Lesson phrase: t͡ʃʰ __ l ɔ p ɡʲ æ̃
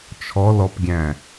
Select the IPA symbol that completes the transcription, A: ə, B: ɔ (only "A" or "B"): B